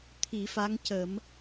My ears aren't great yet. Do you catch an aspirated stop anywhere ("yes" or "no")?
yes